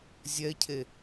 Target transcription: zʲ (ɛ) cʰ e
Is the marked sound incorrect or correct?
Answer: correct